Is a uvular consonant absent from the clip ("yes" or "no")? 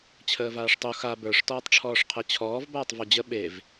no